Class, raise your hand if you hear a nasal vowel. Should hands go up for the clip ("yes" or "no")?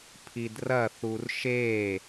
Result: no